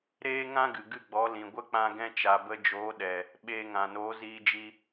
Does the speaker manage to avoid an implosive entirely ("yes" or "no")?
no